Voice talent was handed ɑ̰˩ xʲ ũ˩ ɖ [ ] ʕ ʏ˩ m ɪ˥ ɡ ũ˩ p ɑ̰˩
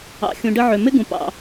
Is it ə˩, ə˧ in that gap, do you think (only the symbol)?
ə˧